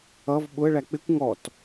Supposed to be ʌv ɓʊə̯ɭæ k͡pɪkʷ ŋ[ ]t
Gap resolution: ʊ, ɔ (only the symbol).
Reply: ɔ